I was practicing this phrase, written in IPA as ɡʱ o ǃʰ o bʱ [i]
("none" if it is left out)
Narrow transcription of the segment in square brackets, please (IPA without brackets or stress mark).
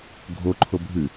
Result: ɨ